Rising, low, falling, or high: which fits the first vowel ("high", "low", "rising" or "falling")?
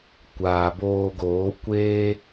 low